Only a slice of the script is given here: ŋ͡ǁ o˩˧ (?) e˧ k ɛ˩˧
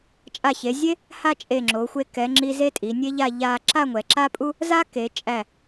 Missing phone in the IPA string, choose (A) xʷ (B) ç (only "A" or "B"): A